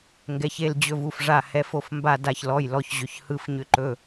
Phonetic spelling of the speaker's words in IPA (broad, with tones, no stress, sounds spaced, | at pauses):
ŋ ɡ ɛ˩˧˩ ç e˩˧˩ l d͡ʑ ɵ˧˩ v u˩˧˩ f ʐ a˧˩ h ɛ˩˧˩ f o˧˩ f m b a˧˩ d a˧˩ ç l ɔ˩˧˩ j l ɔ˩˧˩ ç ʑ ʏ˩˧˩ ç h ɯ˧˩ f ɲ ʏ˧˩ ǃ ɵ˩˧˩